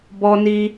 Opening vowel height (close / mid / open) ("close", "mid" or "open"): mid